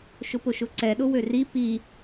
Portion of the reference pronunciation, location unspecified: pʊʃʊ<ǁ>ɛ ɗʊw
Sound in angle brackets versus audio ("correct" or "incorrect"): incorrect